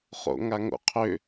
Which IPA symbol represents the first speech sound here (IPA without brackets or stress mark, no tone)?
χ